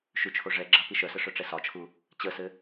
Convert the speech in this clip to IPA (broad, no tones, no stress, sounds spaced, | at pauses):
ʃ ʉ t͡ʃʰ o ʐ ɛ ɡ͡ǁ a p i ʃ œ s ə ʂ œ ʈ͡ʂ ɛ s ɒ t͡ʃʰ u | t͡ɕ ə s ɘ